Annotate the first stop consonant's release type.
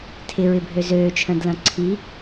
aspirated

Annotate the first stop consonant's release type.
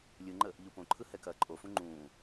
click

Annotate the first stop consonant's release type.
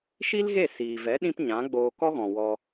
implosive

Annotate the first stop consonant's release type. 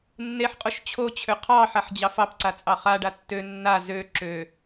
ejective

